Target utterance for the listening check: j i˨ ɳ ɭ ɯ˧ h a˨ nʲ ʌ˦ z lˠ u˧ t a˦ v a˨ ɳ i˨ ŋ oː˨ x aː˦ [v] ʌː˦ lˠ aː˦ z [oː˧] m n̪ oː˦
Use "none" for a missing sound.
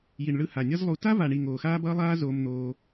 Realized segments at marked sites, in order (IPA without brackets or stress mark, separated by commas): b, oː˦